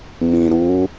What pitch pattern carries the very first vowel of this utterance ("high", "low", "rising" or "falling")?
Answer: low